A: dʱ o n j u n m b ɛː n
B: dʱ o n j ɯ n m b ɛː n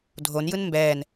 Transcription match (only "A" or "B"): B